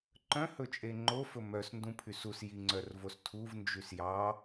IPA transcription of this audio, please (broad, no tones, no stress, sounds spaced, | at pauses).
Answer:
ǃ œ̃ h ɵ t͡ʃʼ e ŋ͡ǃ o f ɵ m œ s n d ũ pʰ y s u s j i ŋ͡ǀ œ r v o s tʰ u v n d͡ʒ y s j ɑ